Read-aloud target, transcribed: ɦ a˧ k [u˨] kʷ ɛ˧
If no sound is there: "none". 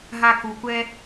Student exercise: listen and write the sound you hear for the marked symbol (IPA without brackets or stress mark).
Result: u˨